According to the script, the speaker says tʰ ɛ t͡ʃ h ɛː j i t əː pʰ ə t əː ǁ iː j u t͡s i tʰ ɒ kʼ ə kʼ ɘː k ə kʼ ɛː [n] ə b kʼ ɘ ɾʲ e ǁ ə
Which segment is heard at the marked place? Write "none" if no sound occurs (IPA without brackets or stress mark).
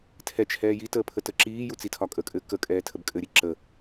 tʰ